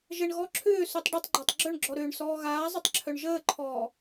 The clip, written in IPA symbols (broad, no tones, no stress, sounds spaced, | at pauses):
ʒ ə ɳ ɣ ɔ ǁʰ ʏː s u tˤ ɖ ɘ tˤ ɡ͡ǃ ɒ tˤ ɡ͡ǁ œ ɳ ɡ͡ǁ ɔ ɾ ʏː ɳ s ɔː ɣ aː zˤ ʏ tˤ ǁʰ œ ɳ ʒ əː ǃʰ ɔː